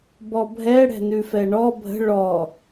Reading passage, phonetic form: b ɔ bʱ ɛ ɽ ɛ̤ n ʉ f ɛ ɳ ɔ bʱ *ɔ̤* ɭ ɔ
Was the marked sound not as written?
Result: yes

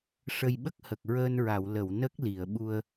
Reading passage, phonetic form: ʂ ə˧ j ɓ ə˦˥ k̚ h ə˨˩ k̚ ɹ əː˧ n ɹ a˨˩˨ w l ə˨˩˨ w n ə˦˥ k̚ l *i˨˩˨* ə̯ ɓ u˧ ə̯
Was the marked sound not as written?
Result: no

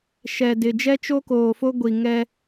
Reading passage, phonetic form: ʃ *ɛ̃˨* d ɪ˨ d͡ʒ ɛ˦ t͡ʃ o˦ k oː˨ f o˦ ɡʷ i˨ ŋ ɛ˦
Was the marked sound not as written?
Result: yes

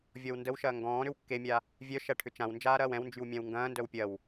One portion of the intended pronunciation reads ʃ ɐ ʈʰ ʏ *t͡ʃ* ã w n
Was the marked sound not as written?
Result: no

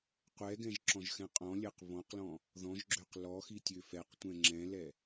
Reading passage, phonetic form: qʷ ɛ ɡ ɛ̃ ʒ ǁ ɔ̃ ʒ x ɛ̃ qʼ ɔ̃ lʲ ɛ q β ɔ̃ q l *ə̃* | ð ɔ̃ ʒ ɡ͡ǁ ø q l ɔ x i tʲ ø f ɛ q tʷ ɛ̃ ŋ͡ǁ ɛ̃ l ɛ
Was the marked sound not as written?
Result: yes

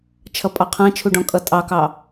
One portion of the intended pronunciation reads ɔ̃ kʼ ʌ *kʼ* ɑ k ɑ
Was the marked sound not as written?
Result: yes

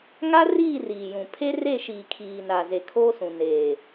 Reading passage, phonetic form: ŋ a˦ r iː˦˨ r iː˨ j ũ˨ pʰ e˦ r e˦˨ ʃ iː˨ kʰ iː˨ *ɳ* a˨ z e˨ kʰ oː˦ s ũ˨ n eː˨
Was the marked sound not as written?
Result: yes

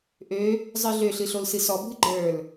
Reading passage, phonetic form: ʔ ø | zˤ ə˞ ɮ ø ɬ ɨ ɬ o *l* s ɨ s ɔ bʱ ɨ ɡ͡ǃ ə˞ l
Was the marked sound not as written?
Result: no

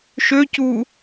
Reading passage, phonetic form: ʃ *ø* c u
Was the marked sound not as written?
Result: no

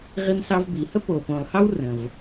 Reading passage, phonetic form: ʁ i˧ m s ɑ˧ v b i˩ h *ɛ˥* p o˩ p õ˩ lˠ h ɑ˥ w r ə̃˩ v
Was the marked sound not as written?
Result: yes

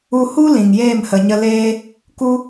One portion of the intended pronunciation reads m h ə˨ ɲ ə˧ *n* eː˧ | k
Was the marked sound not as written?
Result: yes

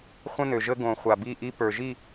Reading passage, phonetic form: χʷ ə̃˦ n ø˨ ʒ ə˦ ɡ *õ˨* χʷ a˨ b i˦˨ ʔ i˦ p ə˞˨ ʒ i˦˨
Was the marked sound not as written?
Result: no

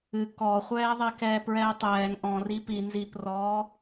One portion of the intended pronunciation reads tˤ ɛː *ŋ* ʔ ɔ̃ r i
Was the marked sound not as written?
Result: no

